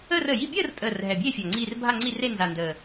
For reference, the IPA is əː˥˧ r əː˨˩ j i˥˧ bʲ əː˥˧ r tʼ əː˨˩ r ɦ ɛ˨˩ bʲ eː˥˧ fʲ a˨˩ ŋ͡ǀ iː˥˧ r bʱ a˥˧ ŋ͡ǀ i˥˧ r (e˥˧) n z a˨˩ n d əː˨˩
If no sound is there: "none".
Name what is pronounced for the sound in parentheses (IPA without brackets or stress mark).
e˥˧